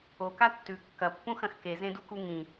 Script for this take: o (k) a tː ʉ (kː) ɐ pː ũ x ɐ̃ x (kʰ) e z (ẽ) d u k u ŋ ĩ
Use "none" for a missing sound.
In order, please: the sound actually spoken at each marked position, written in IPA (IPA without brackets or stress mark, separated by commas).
k, kː, k, ẽ